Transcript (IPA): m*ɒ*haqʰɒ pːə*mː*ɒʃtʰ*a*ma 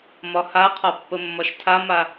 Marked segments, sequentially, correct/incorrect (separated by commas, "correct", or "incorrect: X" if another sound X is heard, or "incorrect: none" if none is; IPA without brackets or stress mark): correct, correct, correct